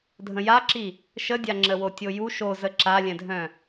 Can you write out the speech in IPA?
dʱ ə̃ j a ǁ i | ʃ ə dʲ a ŋ͡ǁ ə w o tʲ o j u ʃ o z ə ǁ a lʲ ɛ̃ dʱ œ̃

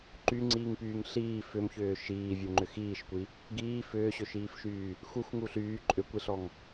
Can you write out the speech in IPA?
ǃ y ŋ͡ǀ iː ŋ p yː ŋ ɬ iː f ʏ m ç ʏː ʃ iː vʲ u ŋ͡ǃ ʏ x iː ʃ kʷ i | ɡ iː f ʏː ɕ ʏ ʃ iː f ʃ yː | x u x ŋ u ɬ yː ǃʼ ʏ kʷ i ɬ ɔ ŋ

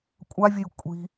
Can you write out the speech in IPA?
kʷʼ a vʲ ə j kʷʼ i̤

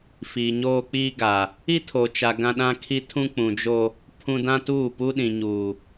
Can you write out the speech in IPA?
f iː˨ ɲ oː˦ k͡p iː˦ ɡ a˨ | i˦ tʰ o˨ t͡ʃ a˨ ɡ ã˦ ɗ ã˦ kʰ i˦ tʰ ũ˦ k͡p ũ˨ d͡ʒ o˦ | pʰ ũ˦ d ã˦ t uː˦˨ p u˦ ɗ ĩ˨ ɲ uː˨

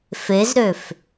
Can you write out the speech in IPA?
f e z ɾ ø f

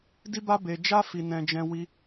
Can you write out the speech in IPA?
d i˦ b a˦ b e˧ d͡ʒ a˦ f i˧ n ɛ̃˧ d͡ʒ ɛ̃˦ w i˦

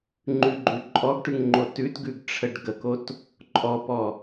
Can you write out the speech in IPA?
ŋ͡ǃ ʉ ɡ͡ǃ ʉ ǃʼ ɔ ɡ ʈ ʉ ŋ ŋ͡ǃ o t ʉ t ɡ ʉ ɡ ʈ͡ʂʰ ə ɖ ɡ ə k o t | ǃʼ ɔ p ɔ

